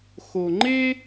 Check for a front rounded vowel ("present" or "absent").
absent